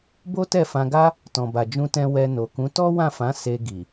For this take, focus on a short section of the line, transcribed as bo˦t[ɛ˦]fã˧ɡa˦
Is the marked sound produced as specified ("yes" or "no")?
no